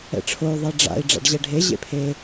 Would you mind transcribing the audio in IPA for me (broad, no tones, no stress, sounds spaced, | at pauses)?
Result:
ɛ̰ ʈ͡ʂʰ o y̯ ðˤ e ɖ͡ʐ a̰ i̯ ɖ͡ʐ a̰ ɖ ʑ ɛ ɖʱ e ʑ ḛ pʰ e